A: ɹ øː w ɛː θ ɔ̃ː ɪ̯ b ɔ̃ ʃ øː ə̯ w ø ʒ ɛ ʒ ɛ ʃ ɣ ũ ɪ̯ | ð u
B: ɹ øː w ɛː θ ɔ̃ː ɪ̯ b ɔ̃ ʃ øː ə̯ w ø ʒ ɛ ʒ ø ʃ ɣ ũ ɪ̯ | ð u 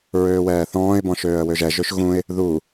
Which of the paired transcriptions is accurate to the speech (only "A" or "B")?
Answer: B